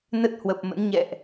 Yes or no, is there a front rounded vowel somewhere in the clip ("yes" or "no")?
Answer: no